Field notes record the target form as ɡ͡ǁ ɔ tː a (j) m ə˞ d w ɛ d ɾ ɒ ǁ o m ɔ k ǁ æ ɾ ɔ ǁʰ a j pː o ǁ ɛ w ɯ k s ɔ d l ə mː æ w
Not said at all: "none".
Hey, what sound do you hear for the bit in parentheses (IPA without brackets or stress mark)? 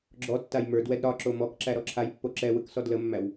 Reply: j